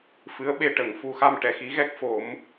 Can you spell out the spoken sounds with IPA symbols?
f ɨ˧˥ ə̯ ɓ e˧ ʈ ə˨˩˨ ŋ f u˧ x a˧ m ʈ ɛ˨˩˨ x i˧˥ ɣ ɛ˦˥ k̚ f o˨˩˦ m

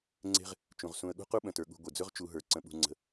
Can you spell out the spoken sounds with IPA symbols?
ŋ͡ǀ e̤˦ ʁ | t͡ʃ ũ˩ ʁ s ũ˨ ə̯ ɠ ṳ˥ q u˥ ɓ ə̃˩ t ə˞˩ ɠ ṳ˨ ɡʷ e˩ d͡z ɵ˥ ʁ t͡ʃ u˨ ɦ ə˞˩ ǀ ə̃˨ ɓ ṳ˨ ŋ͡ǀ ə̤˨

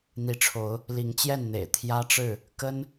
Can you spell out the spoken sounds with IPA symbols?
n̪ i˨˦ ʈ͡ʂʰ o˨˦ ʊ̯ | l i˨˦ ŋ t͡ɕ j ɛ˥˨ n n̪ ḛ˨˩ ɪ̯ t̪ʰ j ä˦ ʈ͡ʂ ɻ̩˥˨ | k ə˦ n

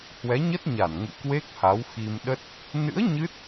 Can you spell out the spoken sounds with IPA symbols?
h w ɛ˨˦ ɲ ə˦˥ t̚ ɲ a˧˩ n ŋ ṵ˧˨ k w e˦˥ k̚ h a˨˦ w x i˧ m ɗ ə˦˥ t̚ | n ɨ̰˧˥ ə̯ ɲ ɨ˦˥ t̚

